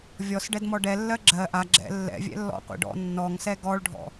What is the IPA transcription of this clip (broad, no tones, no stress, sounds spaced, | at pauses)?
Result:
vʲ ɔ s ɖ ɛ d m ɔ ɖ ɛ lː ɜ ɡ͡ǁ ɜ ʔ a ɡ͡ǁ ɛ̰ lː ɛ̰ vʲ ɛ̰ lː ɔ̰ qʷ ɛ̰ ɖ ɔ̰ nː ɔ ŋ s ɛ ɡ ɔ ɭ ɖʱ ɔ̰